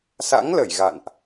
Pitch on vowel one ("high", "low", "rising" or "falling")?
rising